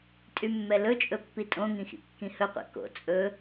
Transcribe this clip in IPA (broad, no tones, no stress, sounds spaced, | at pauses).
tʼ y mː ɛ l ɵ t͡ʃʼ ɵ pː i tʼ õ ŋ ĩ x ḭ kː ĩ h ɵ qʷ ɛ̰ k o̰ t͡sʼ ɵ